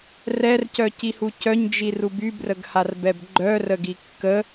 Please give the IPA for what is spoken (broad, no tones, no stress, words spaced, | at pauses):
rɛrcœcihu cœɲd͡ʒiru bybrəɡharbɛb ɡ͡ǃœrəɡi kːə